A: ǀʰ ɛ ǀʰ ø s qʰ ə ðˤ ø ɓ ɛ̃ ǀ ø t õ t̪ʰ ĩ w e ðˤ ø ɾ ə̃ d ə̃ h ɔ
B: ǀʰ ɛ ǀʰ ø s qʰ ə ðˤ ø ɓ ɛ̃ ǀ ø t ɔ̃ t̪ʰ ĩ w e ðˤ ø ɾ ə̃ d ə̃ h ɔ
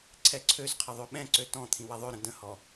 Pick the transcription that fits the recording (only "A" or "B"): B